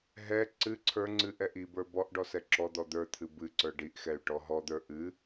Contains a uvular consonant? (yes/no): no